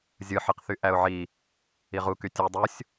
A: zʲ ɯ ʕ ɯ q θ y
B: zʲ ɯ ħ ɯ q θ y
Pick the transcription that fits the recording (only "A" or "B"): B